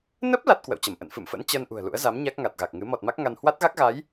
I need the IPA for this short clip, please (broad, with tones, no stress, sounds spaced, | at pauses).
n ə˦˥ p̚ l a˦˥ t̚ k w ə̰˧˨ w t͡ɕ ə˧˩ m ʔ ə̰˧˨ n f ɨ̰˧˨ m f ə̰˧˥ n t͡ɕ əː˧ n ʔ ṳ˨˩ ə̯ l ṵ˧˥ ə̯ z a˨˦ m ɲ a˦˥ k̚ ŋ a˨˩ t̚ ɣ a˨˩ k̚ ŋ ɨ˨˦ m ɔ˨˩ t̚ m a˦˥ k̚ ŋ a˧ n h w a˦˥ t̚ ɣ a˦˥ k̚ ɣ a˨˦ j